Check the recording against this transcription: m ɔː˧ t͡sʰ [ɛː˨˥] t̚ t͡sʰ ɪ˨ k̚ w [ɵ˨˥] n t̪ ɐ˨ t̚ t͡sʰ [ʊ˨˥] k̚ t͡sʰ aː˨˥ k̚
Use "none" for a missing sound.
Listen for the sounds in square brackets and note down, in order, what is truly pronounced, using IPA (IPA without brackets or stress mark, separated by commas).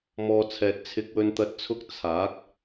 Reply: ɛː˨, ɵ˨, ʊ˧